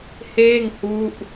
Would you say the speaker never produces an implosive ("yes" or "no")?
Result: yes